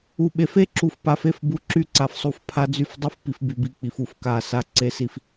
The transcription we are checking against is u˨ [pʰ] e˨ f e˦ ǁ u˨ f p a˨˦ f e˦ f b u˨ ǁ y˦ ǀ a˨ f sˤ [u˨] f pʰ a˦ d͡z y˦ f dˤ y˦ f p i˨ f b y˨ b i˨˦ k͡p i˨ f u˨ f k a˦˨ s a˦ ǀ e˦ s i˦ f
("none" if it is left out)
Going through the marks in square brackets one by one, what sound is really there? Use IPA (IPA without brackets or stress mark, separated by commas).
ɓ, u˨